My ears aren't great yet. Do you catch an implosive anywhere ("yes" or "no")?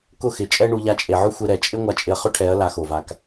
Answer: no